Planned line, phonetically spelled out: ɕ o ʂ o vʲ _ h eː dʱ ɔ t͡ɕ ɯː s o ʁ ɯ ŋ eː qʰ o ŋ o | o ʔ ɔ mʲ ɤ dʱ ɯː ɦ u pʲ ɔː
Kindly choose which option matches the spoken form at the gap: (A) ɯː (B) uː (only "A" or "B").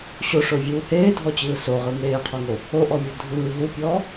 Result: B